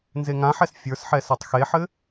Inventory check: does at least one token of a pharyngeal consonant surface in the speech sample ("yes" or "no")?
yes